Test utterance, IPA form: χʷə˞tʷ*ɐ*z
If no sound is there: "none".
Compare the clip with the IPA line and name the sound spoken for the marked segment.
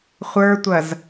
ɐ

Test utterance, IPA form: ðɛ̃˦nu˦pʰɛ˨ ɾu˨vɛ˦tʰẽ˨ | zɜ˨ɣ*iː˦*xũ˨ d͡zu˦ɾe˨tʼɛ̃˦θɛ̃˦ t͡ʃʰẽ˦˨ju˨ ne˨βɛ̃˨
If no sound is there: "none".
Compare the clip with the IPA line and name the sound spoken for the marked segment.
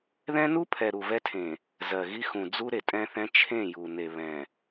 i˦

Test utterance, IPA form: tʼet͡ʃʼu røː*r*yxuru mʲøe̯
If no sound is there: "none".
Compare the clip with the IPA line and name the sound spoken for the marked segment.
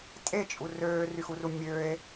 r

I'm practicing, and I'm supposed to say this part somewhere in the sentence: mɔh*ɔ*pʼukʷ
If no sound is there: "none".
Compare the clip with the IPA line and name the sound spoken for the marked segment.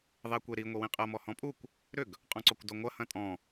ɔ̃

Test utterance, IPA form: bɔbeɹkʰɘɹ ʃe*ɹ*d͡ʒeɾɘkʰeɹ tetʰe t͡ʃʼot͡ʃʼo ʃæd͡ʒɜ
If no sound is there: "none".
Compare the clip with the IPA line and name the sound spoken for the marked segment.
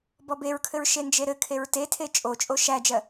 n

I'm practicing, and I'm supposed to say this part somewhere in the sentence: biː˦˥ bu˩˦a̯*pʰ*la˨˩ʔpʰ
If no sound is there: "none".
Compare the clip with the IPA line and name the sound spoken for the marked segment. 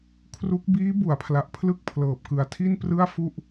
pʰ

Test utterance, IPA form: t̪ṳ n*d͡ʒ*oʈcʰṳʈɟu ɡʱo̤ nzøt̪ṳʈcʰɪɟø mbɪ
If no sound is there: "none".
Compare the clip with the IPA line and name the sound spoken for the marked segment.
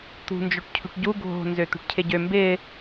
d͡ʒ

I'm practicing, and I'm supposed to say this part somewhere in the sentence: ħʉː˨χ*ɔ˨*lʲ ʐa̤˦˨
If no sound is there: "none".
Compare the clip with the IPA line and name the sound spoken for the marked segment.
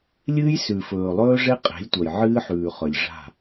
ɵ˨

